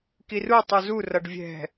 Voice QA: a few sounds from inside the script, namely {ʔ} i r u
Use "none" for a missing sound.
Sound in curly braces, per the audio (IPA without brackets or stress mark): k